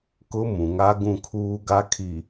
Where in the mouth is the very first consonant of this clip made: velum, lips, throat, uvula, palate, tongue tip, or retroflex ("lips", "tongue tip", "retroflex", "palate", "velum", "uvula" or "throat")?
velum